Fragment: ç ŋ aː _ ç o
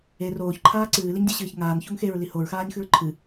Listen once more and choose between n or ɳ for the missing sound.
n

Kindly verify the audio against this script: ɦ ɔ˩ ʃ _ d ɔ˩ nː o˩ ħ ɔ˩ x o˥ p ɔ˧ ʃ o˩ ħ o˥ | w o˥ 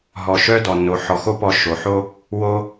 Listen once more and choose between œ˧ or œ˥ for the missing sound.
œ˥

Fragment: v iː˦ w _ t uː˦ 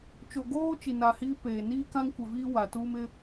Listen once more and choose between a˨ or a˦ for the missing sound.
a˨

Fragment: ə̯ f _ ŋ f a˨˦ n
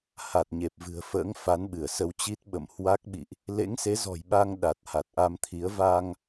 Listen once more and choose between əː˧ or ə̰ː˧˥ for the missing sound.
ə̰ː˧˥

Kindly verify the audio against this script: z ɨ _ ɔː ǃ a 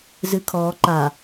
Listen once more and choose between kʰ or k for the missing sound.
kʰ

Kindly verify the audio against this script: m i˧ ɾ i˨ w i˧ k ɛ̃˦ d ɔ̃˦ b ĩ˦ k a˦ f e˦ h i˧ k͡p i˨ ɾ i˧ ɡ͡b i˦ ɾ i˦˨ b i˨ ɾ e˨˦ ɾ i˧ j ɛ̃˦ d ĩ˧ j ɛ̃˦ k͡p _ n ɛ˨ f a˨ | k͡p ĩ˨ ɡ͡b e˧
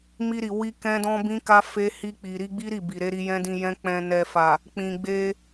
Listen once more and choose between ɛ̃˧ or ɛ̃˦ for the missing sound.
ɛ̃˧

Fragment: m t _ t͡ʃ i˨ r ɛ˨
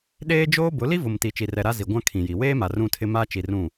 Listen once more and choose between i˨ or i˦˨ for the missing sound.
i˨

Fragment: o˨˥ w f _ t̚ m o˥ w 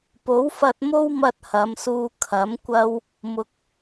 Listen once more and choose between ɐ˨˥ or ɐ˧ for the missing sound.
ɐ˧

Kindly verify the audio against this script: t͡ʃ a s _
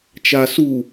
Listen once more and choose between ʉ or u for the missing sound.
u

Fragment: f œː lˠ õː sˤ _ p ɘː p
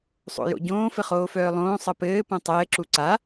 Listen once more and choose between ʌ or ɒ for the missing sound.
ʌ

